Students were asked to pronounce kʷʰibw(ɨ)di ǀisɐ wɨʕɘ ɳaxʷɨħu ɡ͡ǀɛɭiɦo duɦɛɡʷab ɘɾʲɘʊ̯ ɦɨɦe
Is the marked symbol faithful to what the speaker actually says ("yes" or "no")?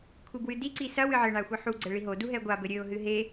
yes